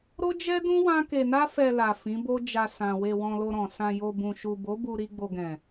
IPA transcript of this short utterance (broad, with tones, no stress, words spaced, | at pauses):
ɾo˦d͡ʒɛ˦dũ˦ wã˦ke˧na˦ fɛ˧la˨ fĩ˨˦bo˦d͡ʒa˧sã˨ we˧wɔ̃˧lo˧ɾɔ̃˨ sã˨jo˨ bũ˨ ʃu˨bo˨˦bu˧ ɾi˧ɡ͡bo˨ɡɛ̃˨